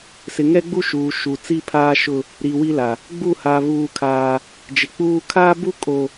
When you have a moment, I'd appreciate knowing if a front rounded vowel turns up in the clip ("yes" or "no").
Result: no